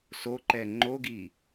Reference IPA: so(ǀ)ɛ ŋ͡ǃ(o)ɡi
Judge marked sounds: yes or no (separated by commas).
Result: no, yes